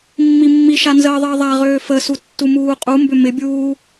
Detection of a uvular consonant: present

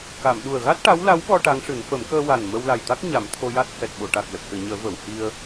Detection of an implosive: present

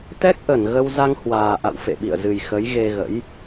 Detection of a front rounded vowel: absent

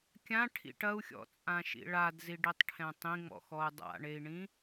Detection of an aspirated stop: present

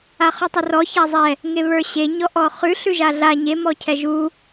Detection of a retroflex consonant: absent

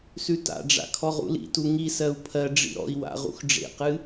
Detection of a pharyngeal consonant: absent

